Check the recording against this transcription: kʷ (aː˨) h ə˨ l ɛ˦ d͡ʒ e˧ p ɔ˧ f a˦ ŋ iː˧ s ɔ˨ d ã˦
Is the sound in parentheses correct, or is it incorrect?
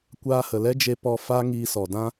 incorrect